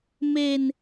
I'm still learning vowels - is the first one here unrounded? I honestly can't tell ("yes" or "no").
yes